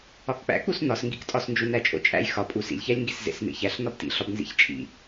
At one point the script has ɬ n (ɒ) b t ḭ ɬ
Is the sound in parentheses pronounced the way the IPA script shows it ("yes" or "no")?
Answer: yes